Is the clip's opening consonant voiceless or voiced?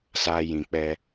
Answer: voiceless